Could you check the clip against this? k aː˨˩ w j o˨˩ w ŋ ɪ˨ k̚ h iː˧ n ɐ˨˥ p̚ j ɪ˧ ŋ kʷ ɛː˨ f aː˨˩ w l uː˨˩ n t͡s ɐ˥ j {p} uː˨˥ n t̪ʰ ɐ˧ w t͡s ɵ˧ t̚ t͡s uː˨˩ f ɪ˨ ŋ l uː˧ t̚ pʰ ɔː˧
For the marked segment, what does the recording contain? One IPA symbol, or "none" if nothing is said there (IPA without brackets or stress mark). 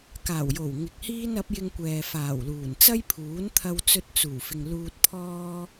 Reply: pʰ